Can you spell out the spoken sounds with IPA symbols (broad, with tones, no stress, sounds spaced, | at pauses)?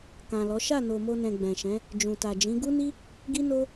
k ã˨ l ɔ˨˦ ʃ a˦˨ n o˨ m o˧ n ɛ̃˨ ɡ͡b ɛ̃˨ ʃ ɛ̃˨˦ | d͡ʒ ũ˨ t a˨ d͡ʒ ĩ˨˦ ɡ u˦ n i˦ | ɡ i˦ n o˦